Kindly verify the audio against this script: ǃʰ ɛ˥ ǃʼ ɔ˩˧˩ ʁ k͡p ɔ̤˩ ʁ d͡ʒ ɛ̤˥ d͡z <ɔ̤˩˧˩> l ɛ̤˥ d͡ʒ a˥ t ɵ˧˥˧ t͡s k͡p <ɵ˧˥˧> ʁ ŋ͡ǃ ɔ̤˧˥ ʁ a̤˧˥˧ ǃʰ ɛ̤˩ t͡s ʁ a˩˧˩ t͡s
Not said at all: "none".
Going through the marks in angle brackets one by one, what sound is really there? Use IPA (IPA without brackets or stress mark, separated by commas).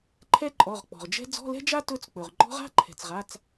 ɔ̤˧˥˧, ɵ˩